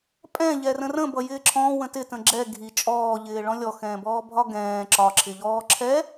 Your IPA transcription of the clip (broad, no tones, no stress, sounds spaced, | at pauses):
pʼ ɛ̃ ʎ ɛ r ə̃ r ə̃ b ʌ j ɪː ǁʰ ɔ̃ w ə̃ t ɪ t ə̃ ɡ͡ǁ ɛ ɡʱ i t͡ʃʼ ɔː ʎ ɪː ɭ ɔ̃ lʲ ɔ x ɛ̃ː b ɔː bʱ ɒ ɡ ɛ̃ː ǁ ɒ ǁʰ ɪ ʎ ɔː ǁʰ ɛ